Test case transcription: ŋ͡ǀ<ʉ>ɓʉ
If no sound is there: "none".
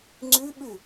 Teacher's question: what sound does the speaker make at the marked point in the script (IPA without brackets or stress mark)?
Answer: ʉ